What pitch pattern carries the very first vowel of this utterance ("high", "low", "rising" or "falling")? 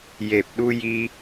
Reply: low